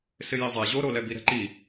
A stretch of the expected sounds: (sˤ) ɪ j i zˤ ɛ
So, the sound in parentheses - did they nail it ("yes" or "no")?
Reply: no